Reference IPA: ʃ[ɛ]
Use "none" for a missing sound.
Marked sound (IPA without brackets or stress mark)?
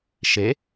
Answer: e